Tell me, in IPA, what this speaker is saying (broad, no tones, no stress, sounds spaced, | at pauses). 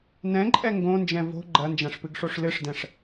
n ɛ̃ ǃʼ ɛ ŋ ɡ õ n d͡ʒ ɛ̃ v o̤ ɡ͡ǃ ɐ n d͡ʒ ã ʂ p ɨ ɡ ʂ o ʂ l ɨ ʂ d ɛ̃ ʂ